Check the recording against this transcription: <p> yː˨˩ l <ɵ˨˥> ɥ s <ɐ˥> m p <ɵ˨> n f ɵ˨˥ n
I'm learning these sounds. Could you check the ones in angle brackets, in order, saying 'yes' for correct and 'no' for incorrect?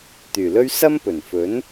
no, no, yes, no

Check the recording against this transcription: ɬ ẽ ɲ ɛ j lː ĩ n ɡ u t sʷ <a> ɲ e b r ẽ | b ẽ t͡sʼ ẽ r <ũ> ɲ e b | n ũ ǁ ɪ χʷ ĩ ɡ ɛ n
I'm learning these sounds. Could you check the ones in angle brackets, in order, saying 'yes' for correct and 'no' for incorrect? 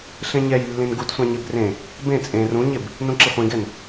no, yes

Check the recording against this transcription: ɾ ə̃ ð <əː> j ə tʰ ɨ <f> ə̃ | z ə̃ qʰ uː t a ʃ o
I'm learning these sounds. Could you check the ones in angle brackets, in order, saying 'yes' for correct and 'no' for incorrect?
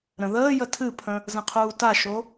yes, no

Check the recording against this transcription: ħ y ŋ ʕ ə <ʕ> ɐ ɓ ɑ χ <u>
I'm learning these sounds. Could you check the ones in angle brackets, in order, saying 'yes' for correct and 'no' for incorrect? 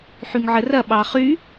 no, no

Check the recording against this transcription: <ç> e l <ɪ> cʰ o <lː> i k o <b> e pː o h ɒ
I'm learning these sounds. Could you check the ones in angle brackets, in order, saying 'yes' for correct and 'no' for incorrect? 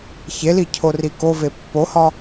yes, no, no, no

